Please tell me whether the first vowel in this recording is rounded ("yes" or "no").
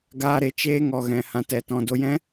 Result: no